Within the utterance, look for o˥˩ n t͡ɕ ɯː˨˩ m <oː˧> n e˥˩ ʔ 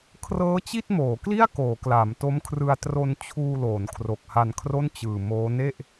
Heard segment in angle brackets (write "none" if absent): oː˦˥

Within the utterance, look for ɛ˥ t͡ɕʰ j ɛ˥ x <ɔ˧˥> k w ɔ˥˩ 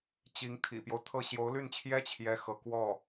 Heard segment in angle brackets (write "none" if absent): ɤ˧˥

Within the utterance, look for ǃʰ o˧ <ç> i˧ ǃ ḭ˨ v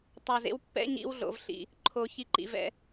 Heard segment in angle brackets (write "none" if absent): ç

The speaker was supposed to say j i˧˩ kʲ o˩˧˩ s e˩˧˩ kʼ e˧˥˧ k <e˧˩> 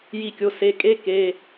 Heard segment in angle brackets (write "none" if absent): e˩˧˩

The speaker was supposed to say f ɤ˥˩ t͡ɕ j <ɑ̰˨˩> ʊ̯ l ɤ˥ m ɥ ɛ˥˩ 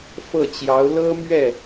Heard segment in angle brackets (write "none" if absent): ɑ˧˥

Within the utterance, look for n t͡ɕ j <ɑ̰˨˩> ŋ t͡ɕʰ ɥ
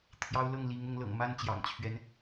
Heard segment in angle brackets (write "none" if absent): ɑ̰˨˩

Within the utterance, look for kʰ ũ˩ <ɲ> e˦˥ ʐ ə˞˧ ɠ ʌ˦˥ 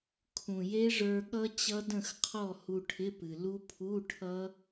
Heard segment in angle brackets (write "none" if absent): j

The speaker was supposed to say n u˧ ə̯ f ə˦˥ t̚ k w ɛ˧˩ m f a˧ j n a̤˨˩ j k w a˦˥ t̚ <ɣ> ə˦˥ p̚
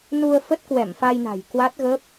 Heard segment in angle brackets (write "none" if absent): ɣ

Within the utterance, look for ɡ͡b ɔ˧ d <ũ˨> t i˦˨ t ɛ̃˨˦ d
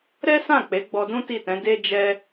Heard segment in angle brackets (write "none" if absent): ũ˦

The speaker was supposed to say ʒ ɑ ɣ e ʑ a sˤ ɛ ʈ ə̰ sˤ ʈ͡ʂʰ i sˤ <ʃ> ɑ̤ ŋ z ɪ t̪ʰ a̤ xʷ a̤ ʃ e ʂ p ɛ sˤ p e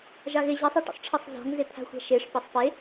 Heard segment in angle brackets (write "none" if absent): z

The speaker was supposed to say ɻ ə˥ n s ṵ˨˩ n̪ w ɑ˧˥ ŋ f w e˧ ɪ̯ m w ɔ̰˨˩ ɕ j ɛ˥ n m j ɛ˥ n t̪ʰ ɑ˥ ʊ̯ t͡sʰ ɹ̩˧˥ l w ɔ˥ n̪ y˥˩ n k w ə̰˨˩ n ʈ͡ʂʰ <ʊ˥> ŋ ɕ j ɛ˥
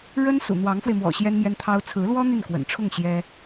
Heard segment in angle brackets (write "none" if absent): ʊ˥˩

